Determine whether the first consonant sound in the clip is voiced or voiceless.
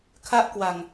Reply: voiceless